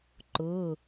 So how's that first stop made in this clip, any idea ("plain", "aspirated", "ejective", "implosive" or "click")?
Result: click